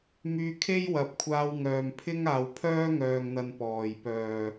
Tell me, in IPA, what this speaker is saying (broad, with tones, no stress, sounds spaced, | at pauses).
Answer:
m yː˧ kʰ e˥ j w ɐ˨˥ p̚ kʷʰ aː˧ w ŋ œː˨ m pʰ ɪ˥ ŋ aː˨ w pʰ œː˥ ŋ œː˨ ŋ n̪ ɐ˨ n p ɔː˨˩ j p œː˨˩